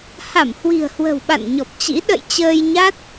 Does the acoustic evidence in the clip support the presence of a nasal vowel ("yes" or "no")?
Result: no